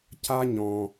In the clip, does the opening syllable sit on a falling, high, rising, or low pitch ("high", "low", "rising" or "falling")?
high